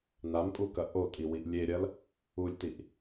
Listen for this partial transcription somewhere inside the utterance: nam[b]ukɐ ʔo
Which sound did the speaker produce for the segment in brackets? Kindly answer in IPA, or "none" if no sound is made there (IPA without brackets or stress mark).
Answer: pʼ